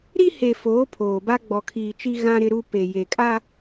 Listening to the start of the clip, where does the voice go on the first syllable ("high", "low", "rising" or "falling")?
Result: high